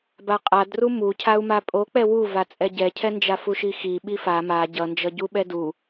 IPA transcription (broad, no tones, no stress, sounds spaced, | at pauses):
b a qʼ a d r u m u cʰ a u̯ m a pʼ o k͡p ɛ w u v a t͡sʼ ɛ ɟ ɛ cʰ ɛ n d͡ʒ a f u ʃ i x i ɓ i f a m a ɟ ʌ n d͡ʒ ʌ ɟ u ɓ ɛ d u